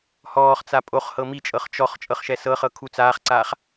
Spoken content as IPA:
h ɔː χ t͡s a pʼ o χ h ɤ m i t͡ʃʼ ɤ χ t͡ʃ ɔ χ t͡ʃʼ ɤ χ ʃ ɛ s ɤ χ ɤ kʰ u t͡s aː χ ǀ aː χ

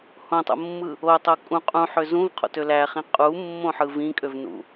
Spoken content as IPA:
h õ tˤ o̰ mː ɯ | o tˤ o kʼ ũ qʼ ũ ħ ø z ũ v qʰ o̰ t ø l æ χ ĩ qʼ u mː õ ħ ɯ v ĩ kʼ ø v n ṵ

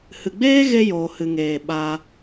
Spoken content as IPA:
h ɨ˨ ɡ͡b eː˦ ɣ e˧ j oː˨ h ɨ˨ ŋ eː˨ ɓ a˧

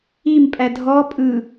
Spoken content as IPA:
i m pʼ æ dʱ ɔ pʼ ɯ

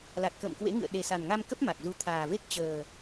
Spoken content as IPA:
l a˨˩ t̚ k ə̰ː˧˨ m k w ḛ˧˥ ŋ ɨ̰˧˨ ə̯ ɗ e˨˩ s a˨˩ n ŋ a˧ m k ə˦˥ p̚ m a˨˩ k̚ z u˧ t̪ʰ aː˨˩ v e˦˥ k̚ t͡ɕ əː˨˩

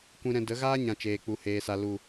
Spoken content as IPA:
kʷ ĩ˧ ɾ ɛ̃˧ d ə˨˦ ɣ aː˦ ɲ ã˨ t͡ʃ eː˨ k͡p u˨ h eː˨ s a˨ l u˨

